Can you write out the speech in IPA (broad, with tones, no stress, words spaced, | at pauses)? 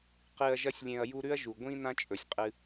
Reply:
qɨː˨ɐ̯ʒɐ˦sʲlʲẽ˨ɐ̯ ju˦ɾʉ˥ɐ̯ʒu˩ ɡʷĩ˦ nã˦t͡ʃʼɵ˩sʲqʼɨ˨